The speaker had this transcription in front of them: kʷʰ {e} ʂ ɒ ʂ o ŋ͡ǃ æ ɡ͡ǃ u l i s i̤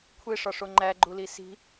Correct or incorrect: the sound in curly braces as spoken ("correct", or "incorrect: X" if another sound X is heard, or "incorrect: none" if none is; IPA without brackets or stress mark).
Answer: correct